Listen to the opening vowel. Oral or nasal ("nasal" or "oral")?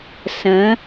nasal